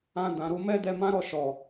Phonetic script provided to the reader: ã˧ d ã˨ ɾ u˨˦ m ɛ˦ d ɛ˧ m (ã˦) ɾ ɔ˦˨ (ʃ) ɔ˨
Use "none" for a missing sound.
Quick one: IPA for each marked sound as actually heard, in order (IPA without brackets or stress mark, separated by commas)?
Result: ã˦, ʃ